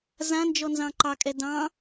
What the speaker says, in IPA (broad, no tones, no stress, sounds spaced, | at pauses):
z ã n d͡ʒ ɔ n z ɑ̃ ǃ ɑ kʼ ɛ d ɑ̃